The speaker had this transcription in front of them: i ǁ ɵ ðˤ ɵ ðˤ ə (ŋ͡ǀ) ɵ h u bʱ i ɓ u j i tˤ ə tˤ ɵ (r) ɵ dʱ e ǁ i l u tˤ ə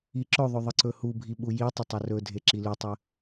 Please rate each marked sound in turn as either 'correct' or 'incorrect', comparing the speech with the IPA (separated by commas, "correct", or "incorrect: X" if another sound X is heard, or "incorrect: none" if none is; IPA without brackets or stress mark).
incorrect: ǀ, correct